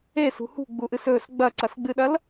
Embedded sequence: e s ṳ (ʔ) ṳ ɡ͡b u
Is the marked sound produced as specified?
no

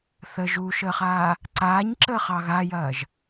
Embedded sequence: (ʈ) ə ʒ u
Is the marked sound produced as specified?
no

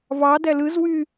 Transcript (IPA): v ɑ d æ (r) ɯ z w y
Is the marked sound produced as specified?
no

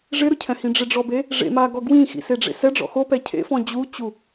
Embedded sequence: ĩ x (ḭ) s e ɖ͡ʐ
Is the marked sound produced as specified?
yes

